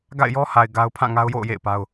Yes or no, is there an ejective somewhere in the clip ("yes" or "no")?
no